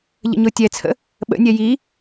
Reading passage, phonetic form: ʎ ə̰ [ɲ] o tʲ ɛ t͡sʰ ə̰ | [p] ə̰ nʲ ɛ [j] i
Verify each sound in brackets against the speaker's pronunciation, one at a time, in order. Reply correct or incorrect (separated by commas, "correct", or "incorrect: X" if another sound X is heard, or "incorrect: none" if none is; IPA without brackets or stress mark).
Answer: correct, incorrect: ɓ, correct